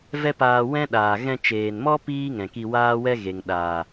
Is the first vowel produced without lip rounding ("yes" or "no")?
yes